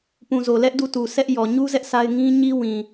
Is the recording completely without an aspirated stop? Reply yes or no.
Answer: yes